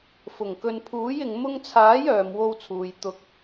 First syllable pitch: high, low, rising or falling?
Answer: low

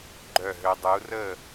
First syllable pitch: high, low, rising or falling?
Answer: falling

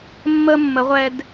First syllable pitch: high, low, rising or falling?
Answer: high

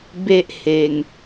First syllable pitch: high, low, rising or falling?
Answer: high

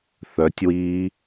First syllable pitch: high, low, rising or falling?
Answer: rising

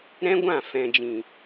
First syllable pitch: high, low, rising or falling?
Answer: high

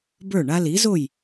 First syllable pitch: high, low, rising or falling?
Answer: falling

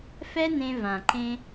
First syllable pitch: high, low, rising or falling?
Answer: high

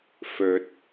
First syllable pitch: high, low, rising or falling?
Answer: low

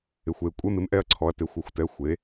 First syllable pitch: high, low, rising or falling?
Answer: low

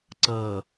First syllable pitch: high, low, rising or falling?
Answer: low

